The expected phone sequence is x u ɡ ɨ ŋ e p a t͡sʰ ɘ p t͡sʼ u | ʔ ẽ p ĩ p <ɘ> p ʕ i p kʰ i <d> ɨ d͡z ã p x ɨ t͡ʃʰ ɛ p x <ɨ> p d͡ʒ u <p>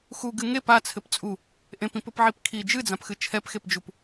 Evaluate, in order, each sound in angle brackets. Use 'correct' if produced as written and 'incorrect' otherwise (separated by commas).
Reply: correct, incorrect, incorrect, correct